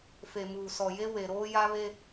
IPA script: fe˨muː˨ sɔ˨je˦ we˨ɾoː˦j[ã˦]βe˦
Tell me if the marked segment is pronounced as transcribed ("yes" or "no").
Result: no